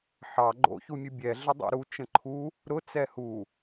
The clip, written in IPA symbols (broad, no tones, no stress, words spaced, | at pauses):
ħɑ ɡ͡ǃo̰çumʲu bʲɛ ɮədˤo̰ɾu t͡ʃə̃ǃʰu | ɾʊ t͡sɛhu